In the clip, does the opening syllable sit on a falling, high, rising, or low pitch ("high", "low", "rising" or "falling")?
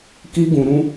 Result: high